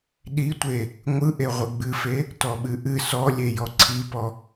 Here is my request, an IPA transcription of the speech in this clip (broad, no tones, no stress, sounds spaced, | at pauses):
ɗ i tʷ e | ŋʷ ɯ ʔ e ʁʷ ɨ ɡ͡b ɨ f e | t ɔ ɓ ɨ ʔ ɨ s ɔ lʲ e j ɔ ǀʰ i p ɔ